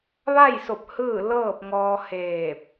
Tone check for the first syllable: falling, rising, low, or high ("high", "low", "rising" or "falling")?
falling